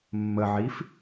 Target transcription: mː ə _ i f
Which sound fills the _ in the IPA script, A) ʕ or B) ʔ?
A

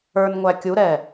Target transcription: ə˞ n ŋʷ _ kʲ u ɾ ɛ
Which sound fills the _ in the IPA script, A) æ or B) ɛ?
A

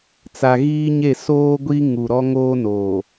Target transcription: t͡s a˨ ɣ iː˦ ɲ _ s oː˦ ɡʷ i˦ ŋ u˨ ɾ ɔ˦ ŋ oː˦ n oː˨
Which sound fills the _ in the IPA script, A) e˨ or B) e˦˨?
B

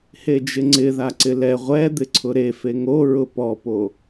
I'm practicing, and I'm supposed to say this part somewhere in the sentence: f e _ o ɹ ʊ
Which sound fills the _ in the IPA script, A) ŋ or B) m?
A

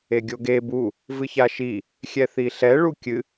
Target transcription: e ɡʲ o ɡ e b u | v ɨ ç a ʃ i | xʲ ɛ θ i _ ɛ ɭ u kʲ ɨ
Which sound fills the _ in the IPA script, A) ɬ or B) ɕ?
A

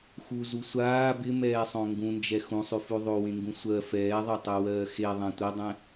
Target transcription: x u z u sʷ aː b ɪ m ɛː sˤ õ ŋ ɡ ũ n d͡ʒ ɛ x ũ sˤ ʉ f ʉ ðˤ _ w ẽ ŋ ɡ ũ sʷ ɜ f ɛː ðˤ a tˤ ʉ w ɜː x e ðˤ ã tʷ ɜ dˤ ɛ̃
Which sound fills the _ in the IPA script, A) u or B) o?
B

